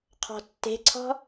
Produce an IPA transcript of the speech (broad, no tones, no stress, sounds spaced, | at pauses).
qʰ ɔ̤ tː e̤ ǀʰ ɔ̤